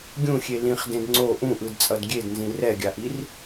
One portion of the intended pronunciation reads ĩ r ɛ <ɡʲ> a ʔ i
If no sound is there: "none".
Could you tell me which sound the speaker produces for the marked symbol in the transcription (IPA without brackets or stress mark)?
ɡʲ